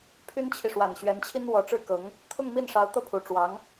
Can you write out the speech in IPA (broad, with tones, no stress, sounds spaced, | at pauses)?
pʰ y˥ n t͡ɕʰ i˨ ʂ w a˨˩ n ɕ ɥ ɛ˧˥ n t͡ɕʰ i˥ n w ɔ˧˥ ʈ͡ʂ ɻ̩˥ k ɤ˧˥ ŋ | t̪ʰ ʊ˥˧ ŋ m i˥˩ n ʂ ɑ˧˥ ʊ̯ t̪ ɤ˥˩ pʰ u˨˩ ʈ͡ʂ w ɑ˧˥ ŋ